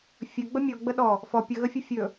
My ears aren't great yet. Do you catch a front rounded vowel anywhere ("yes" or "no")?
no